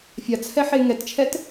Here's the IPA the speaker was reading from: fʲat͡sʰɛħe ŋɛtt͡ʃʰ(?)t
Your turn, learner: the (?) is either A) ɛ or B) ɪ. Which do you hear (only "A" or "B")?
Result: A